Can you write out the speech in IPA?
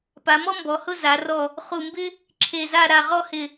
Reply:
p a˩˧ m ɔ˥ m b ɔ˩˧ h ʊ˥˧ z a˩˧ r ɔ˧˩ | χ u˧˩ m b ɪ˥ | ǁʰ e˧˩ z a˥˧ ɾ a˧˩ ʁ ɔ˥˧ h ɪ˧˩

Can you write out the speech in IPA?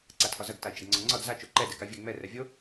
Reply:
ǀ a tʰ ɒ z ɐ ɡ t a i̯ t͡ʃ ɐ ɡ ŋ͡ǀ ɒ ŋ͡ǀ ɒ d z a t͡ʃ o ǃ ɛ d ɛ k a vʲ ɛ ŋ͡m ɛ r ɛ vʲ o

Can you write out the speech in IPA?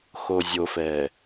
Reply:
x o zʲ o f ɛː

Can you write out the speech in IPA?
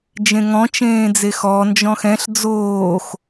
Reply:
d͡ʒ ẽ ŋ ɔ̃ t͡ʃ ẽː d͡z e x ɔ n d͡ʒ ɔ̃ x ɛ̃ ɬ d͡z oː x

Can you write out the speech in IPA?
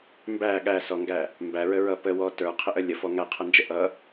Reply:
m b æ ɠ æ s ɔ ŋ ɡ æ | m b æ ɹ ə ɹ ʌ p ə w ɔ t ə˞ qʰ ə ʔ ə lʲ ə f ɔ ŋ æ qʰ ʌ n d͡ʒ ə ʔ ʌ

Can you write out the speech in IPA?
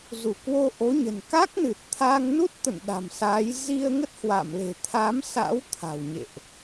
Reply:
z u˧˩ k w o˧ ʔ o˨˦ ɲ ə̤˨˩ n k a˦˥ k̚ n ɨ˨˩ t̚ t̪ʰ a˧ ŋ n u˦˥ t̚ t̪ ə̰˧˨ n ɗ a̤˨˩ m s a˨˦ j z i˧ ə̯ ŋ ə˦˥ t̚ h w a̰˧˨ m l e̤˨˩ t̪ʰ a˨˦ m s a̰˧˥ w t̪ʰ a̤˨˩ w ɲ ḛ˧˨ ʔ

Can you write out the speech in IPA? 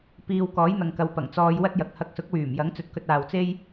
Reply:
p iː˨ w k ɔː˨˥ j n̪ ɐ˨ ŋ k ɐ˨˧ w p ɐ˨˩ ŋ t͡s ɔː˧ j w ɐ˥ t̚ j ɐ˨˥ k̚ h ɐ˧ k̚ s ʊ˨˥ k̚ w yː˨˩ m j ɐ˨˥ ŋ t͡s ɵ˨ t̚ k ɵ˧ t̚ aː˨ w t͡s e˥ j

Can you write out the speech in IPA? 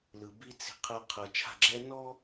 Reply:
l ɯ˨ b i˦ t͡s i̤˦ qʰ ɤ˦ qʰ ɤ˨ t͡ʃʰ a̤˦˨ ɡ͡ǁ ɛ˦ n ɔ˦

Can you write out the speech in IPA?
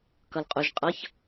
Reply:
k ʌ l qʼ ʊ ʒ qʼ ʌ ç

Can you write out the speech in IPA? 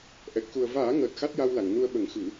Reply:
ʔ ɛ˨˩ k̚ x u˨˩ ə̯ v aː˨˩˦ ŋ əː˨˩ t̚ x a˦˥ t̚ j a˧ w l a˨˩˨ ŋ n u˧ ə̯ ɓ ə˨˩˦ ŋ x ɨ˨˩˦

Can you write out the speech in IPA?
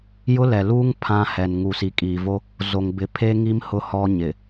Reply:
j ʊ˦ l ɛ˨ l uː˦ ŋ pʰ ã˦ h ɛ˨ n ŋ u˨ s i˨ kʼ iː˨ v o˦ | z o˨ ŋ b ɪ˨ pʰ e˦ ŋ i˦ m h ʊ˦ h ɔ˦ ɲ ɪ˨

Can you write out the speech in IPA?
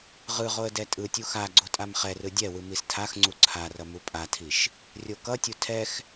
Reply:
ʁ ɯ ʁ o ə̯ d ɛ tʼ ɯ tʲ u x a ɡ͡ǀ o tʼ a m χ ɛ r ɯ dʲ ɛ w ɯ m i s tʰ a x ŋ͡ǀ u ǀʰ a r ʌ m u pʼ a tʰ i ʃ | rʲ o k ʌ tʲ u tʰ ɛ x

